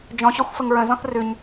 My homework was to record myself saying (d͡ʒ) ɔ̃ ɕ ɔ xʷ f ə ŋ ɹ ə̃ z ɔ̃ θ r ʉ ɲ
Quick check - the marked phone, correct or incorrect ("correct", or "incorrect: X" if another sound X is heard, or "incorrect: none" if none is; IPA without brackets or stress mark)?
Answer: correct